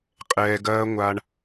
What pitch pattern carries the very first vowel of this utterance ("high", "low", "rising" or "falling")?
low